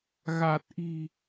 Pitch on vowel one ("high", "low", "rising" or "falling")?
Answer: low